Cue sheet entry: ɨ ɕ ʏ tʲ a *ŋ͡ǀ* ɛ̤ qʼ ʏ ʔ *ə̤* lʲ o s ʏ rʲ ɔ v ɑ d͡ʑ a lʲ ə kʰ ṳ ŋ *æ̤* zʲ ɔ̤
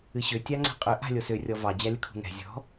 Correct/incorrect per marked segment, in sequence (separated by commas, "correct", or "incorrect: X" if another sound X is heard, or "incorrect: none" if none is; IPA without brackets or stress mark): correct, incorrect: a̤, incorrect: ɛ̤